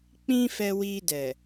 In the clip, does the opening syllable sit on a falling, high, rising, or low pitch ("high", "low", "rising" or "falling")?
high